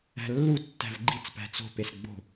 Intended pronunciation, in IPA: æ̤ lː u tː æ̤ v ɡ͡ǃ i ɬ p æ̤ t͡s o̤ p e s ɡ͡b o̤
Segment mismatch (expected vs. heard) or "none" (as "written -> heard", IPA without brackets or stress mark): ɬ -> t͡s